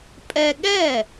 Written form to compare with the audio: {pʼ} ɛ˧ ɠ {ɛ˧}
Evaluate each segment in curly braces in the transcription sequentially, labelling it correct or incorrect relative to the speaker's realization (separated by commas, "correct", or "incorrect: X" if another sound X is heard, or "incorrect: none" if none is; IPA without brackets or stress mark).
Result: correct, incorrect: ɛ˥˩